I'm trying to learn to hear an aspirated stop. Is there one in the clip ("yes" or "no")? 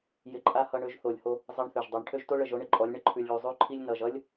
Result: yes